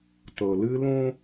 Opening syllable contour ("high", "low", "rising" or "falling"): low